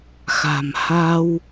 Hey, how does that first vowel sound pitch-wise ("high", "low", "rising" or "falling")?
low